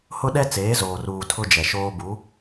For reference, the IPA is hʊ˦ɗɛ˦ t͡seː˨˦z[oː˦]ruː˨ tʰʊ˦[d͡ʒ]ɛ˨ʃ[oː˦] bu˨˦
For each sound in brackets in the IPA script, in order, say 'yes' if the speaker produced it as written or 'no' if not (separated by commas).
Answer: no, yes, yes